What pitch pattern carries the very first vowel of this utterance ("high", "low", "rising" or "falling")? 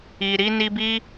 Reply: low